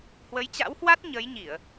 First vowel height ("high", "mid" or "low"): mid